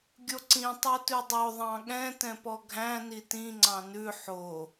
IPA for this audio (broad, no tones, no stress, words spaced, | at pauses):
ɡʲoǀĩ tˤotʉdˤo ðˤɑ̃ɠɛ̃ tɛ̃pɔɡʱæ̃ nitĩ ŋ͡ǀɑ̃nʉ ħo